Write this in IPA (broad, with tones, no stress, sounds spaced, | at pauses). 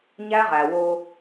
ɲ æ˦ ʁ æ˨ w o˦